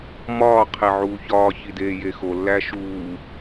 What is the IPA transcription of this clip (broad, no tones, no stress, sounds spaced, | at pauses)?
m ɒː qʰ e ʕ uː ç ɒː ç i d eː j e x o lː æ ʃ uː